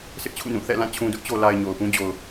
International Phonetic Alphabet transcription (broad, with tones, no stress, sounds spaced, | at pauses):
s ɪ˦ ʔ t͡ɕʰ ṵ˦˨ n ũ˦˨ θ ɛ̰˦˨ l ã˦˨ t͡ɕʰ ũ˨ d ʊ˦ ʔ t͡ɕ o˨ l a˨ ɪ̯ ɲ o˨ ʊ̯ p ũ˦ d͡ʑ o˨ ʊ̯